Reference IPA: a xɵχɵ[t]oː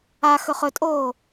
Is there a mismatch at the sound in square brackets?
yes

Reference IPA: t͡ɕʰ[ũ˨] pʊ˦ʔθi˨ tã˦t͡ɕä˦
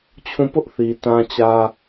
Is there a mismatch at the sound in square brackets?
yes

